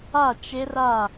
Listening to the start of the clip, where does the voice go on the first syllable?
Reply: falling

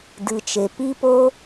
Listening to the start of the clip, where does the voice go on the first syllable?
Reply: low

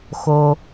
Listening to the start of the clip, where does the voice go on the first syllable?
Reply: low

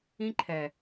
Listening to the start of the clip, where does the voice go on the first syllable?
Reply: high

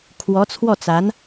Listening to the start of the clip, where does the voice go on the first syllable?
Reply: rising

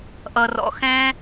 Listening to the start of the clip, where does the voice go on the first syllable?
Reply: low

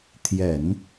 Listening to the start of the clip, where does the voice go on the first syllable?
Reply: low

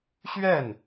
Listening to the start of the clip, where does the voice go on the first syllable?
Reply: falling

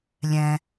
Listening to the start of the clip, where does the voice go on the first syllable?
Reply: low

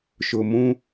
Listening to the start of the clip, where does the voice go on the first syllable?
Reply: low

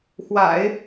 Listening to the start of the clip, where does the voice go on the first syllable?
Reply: low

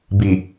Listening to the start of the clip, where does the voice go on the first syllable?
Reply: low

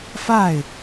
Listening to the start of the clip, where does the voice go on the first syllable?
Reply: falling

